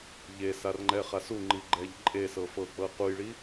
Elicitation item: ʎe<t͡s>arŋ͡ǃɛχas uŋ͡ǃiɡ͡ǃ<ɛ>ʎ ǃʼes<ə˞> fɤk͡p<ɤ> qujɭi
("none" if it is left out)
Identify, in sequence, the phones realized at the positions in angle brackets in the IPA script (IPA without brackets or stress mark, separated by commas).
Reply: s, ɛ, ɤ, ɤ